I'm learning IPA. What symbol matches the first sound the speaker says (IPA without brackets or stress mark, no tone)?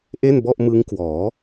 ʔ